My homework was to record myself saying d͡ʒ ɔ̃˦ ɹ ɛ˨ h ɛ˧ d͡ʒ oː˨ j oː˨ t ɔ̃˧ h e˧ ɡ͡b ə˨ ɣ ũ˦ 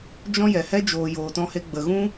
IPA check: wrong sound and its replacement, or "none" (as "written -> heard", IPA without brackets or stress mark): ɹ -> j